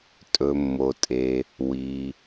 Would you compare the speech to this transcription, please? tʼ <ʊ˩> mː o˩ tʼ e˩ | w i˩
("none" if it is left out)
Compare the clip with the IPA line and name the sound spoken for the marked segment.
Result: ɵ˩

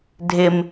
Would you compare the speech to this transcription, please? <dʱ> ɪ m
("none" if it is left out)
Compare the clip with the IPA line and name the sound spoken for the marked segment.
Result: dʱ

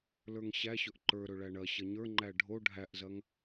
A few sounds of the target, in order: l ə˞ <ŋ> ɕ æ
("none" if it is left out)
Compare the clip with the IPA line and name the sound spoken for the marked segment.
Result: ŋ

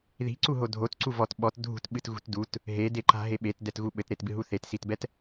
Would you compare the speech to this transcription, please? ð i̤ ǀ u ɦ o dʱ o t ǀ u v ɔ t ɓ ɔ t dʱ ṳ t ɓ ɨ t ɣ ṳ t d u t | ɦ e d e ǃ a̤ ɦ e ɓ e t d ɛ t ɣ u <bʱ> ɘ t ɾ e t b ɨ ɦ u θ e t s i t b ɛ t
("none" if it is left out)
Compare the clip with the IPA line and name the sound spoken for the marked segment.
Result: ɓ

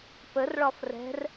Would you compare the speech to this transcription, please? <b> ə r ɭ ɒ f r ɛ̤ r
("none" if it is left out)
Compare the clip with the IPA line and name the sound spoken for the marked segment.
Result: p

